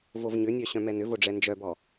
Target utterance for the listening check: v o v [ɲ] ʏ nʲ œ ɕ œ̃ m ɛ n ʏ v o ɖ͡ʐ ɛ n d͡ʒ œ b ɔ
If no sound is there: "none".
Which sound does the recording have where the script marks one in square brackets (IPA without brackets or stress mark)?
ɲ